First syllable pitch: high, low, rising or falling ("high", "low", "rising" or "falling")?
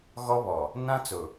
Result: high